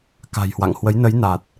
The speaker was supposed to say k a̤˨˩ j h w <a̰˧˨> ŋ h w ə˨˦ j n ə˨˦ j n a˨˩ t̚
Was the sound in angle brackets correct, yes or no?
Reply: yes